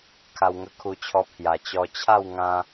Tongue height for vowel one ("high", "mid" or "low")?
low